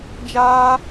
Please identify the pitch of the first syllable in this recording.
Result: high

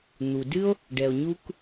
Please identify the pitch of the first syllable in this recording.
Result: low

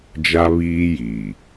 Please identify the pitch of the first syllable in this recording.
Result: high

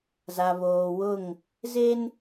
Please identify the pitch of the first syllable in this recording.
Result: low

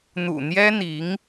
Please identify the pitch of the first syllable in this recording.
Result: low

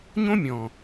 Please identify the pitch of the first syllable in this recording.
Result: high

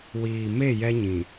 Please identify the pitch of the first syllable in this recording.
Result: low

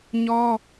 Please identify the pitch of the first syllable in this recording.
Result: high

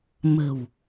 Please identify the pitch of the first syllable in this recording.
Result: low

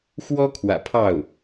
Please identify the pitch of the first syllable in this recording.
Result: high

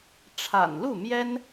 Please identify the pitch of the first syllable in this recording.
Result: low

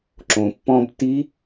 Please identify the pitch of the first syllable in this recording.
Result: low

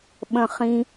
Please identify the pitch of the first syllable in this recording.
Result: low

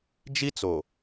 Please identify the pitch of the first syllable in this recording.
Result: high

